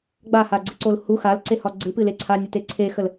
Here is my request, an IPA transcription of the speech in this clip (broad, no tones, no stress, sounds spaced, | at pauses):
ɡ͡b a h a ɡ͡ǀ ɨ ǀ o l h u x a l ǀ e h ɒ ɡ͡ǀ ɨ p ɨ l e ǀʰ a nʲ ə t e ǀʰ e x ə l